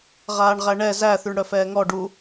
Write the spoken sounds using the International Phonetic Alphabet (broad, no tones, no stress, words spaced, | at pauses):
ʁaːɳʁæɳɛ zæ θyɳɽœfɛːŋɔ ɖu